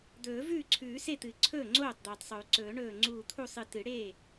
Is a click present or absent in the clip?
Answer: present